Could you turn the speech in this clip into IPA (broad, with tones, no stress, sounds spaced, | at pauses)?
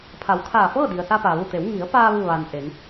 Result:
pʰ a˩˧ w kʰ aː˧˩ f ɤː˥˨ d i˩ ə̯ s a˧ p aː˩ ʋ u˧˩ t̪ e˩˧ w ŋ i˩˧ ə̯ p aː˧ ʋ ɯː˥˨ ʋ aː˧ n ʔ e˩˧ ŋ